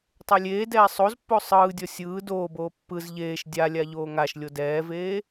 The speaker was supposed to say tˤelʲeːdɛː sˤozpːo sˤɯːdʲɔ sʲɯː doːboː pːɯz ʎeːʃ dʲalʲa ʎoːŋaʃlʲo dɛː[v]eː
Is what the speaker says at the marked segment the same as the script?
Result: yes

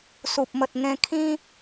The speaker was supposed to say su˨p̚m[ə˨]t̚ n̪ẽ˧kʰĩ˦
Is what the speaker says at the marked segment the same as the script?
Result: yes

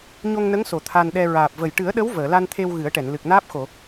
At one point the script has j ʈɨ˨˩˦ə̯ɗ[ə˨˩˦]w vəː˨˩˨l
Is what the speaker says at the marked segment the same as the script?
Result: no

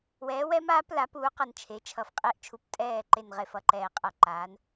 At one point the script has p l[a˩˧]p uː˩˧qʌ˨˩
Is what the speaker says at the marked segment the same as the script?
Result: yes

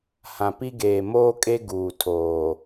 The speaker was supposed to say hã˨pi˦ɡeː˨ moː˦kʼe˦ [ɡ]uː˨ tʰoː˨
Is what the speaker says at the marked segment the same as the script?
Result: yes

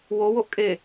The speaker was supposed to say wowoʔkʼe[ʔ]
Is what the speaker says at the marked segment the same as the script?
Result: no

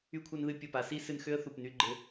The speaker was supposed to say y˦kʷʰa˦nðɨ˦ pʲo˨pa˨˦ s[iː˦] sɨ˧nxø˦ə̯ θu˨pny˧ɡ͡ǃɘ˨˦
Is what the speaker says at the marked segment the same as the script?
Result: no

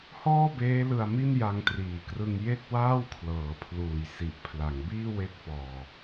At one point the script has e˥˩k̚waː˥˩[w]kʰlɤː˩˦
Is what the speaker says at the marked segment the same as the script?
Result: yes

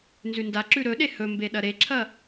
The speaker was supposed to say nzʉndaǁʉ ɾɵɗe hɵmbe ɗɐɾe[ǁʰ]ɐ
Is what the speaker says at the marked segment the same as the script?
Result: yes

